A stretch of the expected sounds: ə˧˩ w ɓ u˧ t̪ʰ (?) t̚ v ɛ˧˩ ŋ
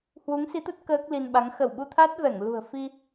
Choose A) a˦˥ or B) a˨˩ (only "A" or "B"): A